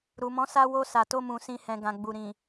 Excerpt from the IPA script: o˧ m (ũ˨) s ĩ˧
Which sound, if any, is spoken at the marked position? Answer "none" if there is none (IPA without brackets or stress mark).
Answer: ũ˨